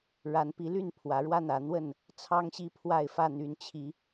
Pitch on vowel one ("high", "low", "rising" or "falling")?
rising